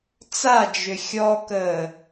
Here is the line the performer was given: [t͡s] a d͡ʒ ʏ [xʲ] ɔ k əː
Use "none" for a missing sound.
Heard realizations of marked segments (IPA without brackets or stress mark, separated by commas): t͡s, xʲ